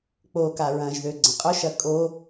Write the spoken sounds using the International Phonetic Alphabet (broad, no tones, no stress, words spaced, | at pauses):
k͡poka ɹɐ̃ʒðø ɡ͡ǀə̃qʼʊʃɐ kʼo